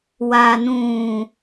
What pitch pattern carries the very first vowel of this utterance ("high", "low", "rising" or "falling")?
low